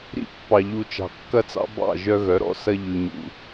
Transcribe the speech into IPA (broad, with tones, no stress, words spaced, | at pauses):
ɾḭ˦pːɑ˨ʎu˨ t͡ʃɑ̤˨kːɐ˦t͡sɑ̰˦ bɑ̰˦˨ ʒœ˦ɣœ˨˦ɾɔ̰˦ sɐ˦ ʎʉ˨ɲṵ˨